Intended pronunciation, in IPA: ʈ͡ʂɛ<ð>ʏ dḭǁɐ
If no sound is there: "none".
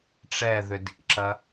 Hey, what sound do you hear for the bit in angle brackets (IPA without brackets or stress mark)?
ð